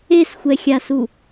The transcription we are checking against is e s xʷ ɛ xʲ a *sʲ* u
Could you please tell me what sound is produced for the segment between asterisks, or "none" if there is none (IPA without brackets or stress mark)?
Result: s